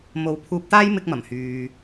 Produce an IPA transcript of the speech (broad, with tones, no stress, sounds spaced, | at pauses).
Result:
m o˨˧ w pʰ uː˧ p̚ t̪ aː˥ j m ɪ˥ k̚ m ɐ˨˩ m h yː˨